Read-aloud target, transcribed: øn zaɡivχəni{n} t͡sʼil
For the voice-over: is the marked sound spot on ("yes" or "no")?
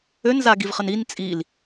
yes